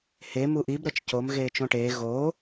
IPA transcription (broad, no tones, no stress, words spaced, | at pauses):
he muʔib ɾɤt͡ʃcomɣeː t͡ʃõʈeː ɣoː